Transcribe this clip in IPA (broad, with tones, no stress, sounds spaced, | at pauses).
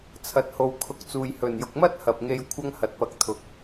t͡sʰ ɐ˨ t̚ h o˨ w kʰ ʊ˨ k̚ t͡s uː˨ j h ɵ˨˩ n j ʊ˨ k̚ m ɐ˥ t̚ h ɐ˨ p̚ ŋ e˧ j kʷʰ ɐ˥ ŋ h ɐ˨˥ t̚ p ɐ˨˥ k̚ t̪ʰ ʊ˨ k̚